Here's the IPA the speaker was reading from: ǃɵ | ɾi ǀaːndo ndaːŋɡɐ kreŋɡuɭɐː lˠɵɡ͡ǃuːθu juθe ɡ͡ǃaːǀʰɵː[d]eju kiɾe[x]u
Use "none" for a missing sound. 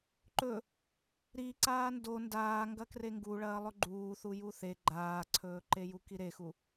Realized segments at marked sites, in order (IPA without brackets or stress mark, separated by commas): ǃ, x